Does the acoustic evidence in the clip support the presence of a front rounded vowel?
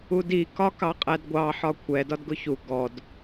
no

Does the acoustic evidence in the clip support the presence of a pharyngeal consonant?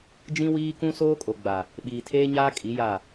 no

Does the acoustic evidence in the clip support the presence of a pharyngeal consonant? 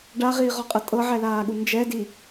yes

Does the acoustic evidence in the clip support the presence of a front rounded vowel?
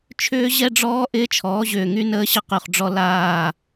yes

